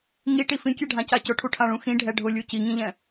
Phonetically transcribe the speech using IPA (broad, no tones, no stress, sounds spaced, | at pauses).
ŋ i ʈ i f ĩ kʲ ɛ ɖʱ ã c a c ʊ ʈʰ u ʈʰ ã ɭ ũ x ĩ ɖʱ ɛ ɖʱ ʊ lʲ u c i ŋ ĩ ʎ ɛ̃